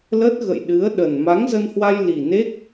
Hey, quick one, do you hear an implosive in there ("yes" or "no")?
yes